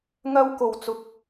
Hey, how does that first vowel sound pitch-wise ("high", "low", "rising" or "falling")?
high